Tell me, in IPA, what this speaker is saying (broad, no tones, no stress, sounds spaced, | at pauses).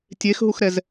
tʲ e x ɦ u x ɾ ɛ z